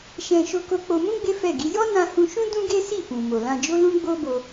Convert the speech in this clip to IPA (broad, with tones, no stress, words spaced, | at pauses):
ʃɛ̃˧ ʃo˧ko˧k͡po˧mũ˦ ɡ͡be˦fɛ˦˨ɡi˨˦ jɔ˦nã˧hũ˧ʃũ˦ dũ˦ɡe˦ si˦˨fũ˨mo˨lã˧ d͡ʒo˦lũ˦ ɡ͡bo˦bo˧